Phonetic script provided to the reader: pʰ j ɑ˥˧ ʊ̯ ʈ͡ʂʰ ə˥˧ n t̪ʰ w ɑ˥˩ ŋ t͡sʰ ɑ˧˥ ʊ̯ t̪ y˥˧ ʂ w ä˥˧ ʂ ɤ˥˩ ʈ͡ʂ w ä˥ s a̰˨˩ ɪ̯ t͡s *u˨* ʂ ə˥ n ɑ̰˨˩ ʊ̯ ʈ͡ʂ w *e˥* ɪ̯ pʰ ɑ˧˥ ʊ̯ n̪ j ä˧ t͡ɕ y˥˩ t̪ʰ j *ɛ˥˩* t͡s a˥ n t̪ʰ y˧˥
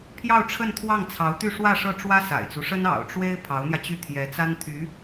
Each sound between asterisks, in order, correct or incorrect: incorrect, correct, incorrect

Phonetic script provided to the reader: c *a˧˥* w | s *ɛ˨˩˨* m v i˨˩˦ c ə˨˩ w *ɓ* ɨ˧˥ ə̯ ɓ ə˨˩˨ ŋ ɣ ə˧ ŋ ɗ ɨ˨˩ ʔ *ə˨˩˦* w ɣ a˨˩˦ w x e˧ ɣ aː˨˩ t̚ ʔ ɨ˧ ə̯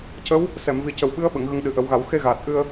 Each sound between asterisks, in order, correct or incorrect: incorrect, correct, correct, correct

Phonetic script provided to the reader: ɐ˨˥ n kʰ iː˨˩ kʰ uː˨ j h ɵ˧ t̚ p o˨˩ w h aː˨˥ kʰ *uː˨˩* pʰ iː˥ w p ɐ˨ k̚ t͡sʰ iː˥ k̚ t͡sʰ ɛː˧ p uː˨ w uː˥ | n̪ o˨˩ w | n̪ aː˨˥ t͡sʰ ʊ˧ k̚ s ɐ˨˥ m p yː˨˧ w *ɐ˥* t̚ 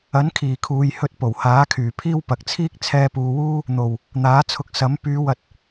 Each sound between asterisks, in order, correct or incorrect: incorrect, incorrect

